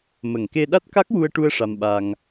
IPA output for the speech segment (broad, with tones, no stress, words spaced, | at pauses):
mə˨˩ŋke˧ ɗa˦˥t̚ka˦˥k̚ wu˧ə̯ʈu˧ə̯ ʂa˧mɓa˧ŋ